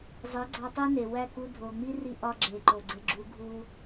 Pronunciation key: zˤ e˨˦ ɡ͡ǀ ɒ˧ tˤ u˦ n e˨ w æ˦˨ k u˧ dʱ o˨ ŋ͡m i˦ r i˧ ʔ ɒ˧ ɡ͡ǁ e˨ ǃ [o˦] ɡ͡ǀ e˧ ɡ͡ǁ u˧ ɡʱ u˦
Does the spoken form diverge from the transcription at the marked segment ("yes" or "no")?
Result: yes